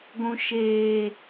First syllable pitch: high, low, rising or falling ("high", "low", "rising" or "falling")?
high